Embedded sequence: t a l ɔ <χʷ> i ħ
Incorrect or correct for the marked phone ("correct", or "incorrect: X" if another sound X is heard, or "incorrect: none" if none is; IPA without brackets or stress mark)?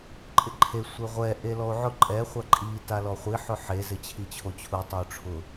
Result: correct